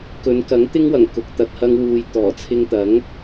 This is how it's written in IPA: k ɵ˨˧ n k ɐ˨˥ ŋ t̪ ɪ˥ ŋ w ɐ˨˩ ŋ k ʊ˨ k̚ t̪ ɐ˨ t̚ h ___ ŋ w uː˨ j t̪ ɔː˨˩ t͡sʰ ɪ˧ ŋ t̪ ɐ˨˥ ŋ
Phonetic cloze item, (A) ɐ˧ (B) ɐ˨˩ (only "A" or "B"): A